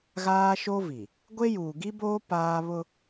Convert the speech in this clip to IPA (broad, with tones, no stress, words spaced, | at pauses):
ɣaː˦ʃo˦vi˨ | ɡʷe˦juː˨ɡi˦boː˦ paː˦βʊ˦